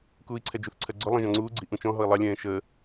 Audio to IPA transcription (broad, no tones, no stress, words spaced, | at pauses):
kuːi̯ǀʰɛd͡ʒuθǀʰɜ ɡ͡ǀʊlˠə̃ ʒɔ̃ŋ͡ǀuːɡ͡ǀi ʔũt͡ʃɔ̃ɦɔi̯ lˠɑlʲɛ̃ː ʃəː